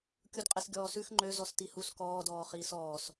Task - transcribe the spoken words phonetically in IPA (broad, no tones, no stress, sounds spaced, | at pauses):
kʲ u d qʼ ɛ s ɡʲ ɔː s ʉ x ŋ͡ǃ ø z ɔ s t i h u s k ɔː d ɔː χ iː s ɔː s